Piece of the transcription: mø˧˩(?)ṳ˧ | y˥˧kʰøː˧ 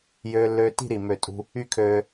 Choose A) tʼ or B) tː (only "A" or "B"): A